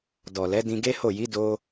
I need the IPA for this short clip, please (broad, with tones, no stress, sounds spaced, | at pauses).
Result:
d ɔ˨ l ɛ˨˦ d ĩ˧ ɡ e˦ h o˦˨ j i˨˦ d o˧